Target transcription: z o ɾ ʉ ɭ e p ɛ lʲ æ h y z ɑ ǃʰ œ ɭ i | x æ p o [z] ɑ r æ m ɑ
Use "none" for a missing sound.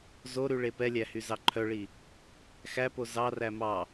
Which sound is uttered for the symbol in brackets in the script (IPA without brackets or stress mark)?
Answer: z